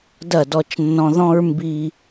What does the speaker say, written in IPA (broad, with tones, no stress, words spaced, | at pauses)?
dɐ˦˨dɔ˦t͡ʃnːɔ̃˦ ðɔ̃˦ɹmbi˦